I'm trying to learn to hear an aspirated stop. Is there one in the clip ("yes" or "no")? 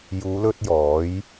no